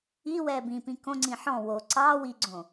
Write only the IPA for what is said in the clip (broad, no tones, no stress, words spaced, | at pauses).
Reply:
iwɛː bĩpĩ kõŋ͡ǀĩ ħɔ̃ wo ǀɑː wiɡ͡ǀõ